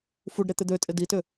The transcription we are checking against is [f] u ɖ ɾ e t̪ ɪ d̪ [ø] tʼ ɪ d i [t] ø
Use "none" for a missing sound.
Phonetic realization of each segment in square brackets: f, ø, t

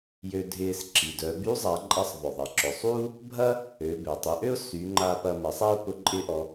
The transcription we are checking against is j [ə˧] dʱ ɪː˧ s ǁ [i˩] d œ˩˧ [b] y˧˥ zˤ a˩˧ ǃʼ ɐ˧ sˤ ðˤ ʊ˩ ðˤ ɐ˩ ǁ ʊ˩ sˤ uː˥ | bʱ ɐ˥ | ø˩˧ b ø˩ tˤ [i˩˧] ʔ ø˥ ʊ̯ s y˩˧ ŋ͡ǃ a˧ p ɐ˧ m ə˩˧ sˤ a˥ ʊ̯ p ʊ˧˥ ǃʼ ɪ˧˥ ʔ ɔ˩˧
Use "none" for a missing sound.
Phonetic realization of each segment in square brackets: ø˧, i˩, b, i˩˧

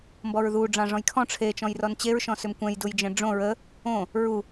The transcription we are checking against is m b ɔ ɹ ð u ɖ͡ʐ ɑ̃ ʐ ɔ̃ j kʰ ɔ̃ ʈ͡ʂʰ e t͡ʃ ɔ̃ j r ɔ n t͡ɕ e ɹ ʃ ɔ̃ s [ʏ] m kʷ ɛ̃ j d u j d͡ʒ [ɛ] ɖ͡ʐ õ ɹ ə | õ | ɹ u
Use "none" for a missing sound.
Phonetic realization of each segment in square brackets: ʏ, ɛ̃

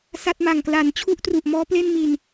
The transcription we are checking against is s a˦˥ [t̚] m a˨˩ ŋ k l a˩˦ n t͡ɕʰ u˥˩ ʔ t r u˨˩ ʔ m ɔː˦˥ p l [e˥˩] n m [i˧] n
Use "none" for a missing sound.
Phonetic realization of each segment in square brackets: t̚, e˥˩, i˧

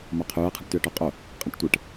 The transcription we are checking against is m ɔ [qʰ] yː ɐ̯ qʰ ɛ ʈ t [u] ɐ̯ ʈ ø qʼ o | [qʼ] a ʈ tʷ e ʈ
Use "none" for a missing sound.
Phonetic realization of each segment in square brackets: qʰ, y, qʼ

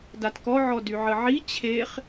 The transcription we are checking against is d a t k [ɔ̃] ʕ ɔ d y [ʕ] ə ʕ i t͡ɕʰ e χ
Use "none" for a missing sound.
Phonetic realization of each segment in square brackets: ɔ, ʕ

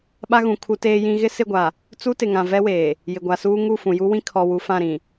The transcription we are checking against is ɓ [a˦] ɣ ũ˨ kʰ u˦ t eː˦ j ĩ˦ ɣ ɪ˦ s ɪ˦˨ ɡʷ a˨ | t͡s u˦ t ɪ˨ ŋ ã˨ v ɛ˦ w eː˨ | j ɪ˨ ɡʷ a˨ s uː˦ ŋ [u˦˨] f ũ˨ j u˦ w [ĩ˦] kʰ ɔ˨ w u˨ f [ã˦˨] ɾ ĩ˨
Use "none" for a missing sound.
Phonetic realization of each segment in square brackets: a˦, u˦˨, ĩ˦, ã˦˨

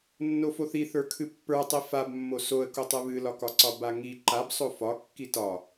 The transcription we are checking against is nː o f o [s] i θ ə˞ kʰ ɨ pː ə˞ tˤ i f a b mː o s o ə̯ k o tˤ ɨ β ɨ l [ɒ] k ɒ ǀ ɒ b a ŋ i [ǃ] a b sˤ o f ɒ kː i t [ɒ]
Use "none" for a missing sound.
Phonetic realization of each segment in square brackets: θ, ɒ, ǃ, ɒ

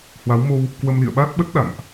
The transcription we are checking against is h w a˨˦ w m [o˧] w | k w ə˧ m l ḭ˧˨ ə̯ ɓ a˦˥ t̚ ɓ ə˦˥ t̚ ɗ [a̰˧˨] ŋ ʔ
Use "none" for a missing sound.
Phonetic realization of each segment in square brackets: o˧, a̰˧˨

